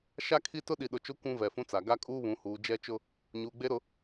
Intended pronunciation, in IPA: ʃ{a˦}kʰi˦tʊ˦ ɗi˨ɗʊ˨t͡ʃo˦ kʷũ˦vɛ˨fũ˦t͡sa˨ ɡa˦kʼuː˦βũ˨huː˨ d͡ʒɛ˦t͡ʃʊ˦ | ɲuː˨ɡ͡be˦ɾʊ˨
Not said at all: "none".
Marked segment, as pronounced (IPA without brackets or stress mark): a˦